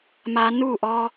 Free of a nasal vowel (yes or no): yes